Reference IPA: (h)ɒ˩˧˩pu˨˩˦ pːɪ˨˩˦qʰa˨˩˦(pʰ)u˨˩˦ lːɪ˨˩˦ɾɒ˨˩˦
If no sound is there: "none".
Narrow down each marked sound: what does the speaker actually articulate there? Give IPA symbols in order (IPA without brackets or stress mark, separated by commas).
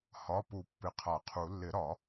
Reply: h, qʰ